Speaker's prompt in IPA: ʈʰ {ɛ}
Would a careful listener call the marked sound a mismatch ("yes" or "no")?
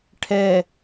no